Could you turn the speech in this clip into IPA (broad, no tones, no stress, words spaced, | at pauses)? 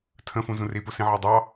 tʰə̃fũzũ ripusĩʕɑ dˤɑ